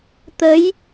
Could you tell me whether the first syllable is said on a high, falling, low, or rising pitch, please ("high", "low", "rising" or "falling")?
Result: rising